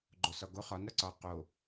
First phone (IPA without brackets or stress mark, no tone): ɡ͡ǃ